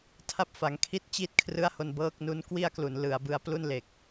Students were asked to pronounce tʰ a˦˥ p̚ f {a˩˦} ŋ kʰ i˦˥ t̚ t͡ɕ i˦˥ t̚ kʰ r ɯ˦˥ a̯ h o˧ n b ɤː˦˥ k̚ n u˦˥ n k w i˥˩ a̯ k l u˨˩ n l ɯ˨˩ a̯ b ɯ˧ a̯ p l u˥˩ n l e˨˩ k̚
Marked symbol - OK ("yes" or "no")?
yes